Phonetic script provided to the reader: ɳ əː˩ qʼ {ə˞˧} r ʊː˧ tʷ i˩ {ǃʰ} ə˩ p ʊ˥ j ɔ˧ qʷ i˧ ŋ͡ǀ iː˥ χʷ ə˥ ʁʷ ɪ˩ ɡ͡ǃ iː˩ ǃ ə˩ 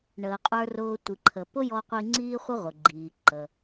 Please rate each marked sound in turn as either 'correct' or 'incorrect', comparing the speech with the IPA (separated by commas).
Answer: correct, correct